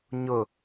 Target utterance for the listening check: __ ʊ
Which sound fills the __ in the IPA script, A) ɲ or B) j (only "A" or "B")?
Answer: A